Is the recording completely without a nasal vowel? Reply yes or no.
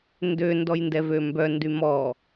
yes